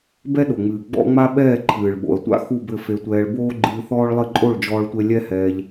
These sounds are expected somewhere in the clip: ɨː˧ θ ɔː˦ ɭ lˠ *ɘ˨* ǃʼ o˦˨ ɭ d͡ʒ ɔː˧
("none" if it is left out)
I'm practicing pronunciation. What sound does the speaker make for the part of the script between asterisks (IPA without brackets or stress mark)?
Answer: ɘ˦˨